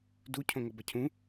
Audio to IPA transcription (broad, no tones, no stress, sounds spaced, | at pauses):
d u cʰ õ ŋ ʌ b ʌ cʰ ũ